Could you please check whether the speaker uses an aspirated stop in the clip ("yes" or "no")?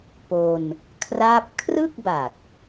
yes